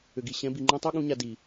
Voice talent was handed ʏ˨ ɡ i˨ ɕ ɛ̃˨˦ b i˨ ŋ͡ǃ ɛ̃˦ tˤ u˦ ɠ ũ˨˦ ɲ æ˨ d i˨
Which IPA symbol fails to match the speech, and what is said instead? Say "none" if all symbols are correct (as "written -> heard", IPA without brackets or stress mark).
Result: æ˨ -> a˨